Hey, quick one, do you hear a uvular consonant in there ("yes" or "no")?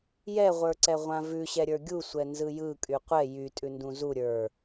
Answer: yes